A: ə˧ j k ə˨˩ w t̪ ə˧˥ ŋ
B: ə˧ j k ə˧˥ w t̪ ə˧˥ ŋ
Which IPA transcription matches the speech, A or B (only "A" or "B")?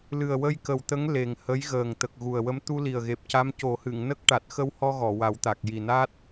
A